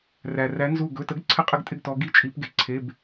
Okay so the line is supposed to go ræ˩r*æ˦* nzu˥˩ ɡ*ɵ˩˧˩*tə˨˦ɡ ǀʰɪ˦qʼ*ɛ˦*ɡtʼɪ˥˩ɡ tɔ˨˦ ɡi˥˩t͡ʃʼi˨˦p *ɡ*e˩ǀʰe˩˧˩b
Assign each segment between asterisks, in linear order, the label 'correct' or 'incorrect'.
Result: incorrect: æ˨˦, correct, incorrect: ɪ˦, correct

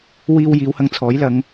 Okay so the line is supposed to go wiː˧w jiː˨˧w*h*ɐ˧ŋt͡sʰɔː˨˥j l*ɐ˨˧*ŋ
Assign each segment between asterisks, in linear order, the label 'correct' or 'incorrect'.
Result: correct, correct

